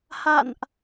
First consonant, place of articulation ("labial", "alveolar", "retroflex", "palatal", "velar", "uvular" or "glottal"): glottal